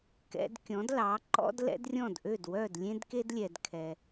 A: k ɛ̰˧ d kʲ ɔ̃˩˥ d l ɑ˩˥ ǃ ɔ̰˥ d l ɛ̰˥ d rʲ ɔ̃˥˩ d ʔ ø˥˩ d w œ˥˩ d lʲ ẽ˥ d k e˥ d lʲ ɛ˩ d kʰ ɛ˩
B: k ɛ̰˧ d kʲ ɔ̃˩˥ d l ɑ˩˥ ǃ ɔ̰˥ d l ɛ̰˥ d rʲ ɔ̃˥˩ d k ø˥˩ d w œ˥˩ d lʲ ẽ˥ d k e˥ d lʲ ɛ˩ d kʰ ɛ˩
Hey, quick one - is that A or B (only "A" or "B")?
A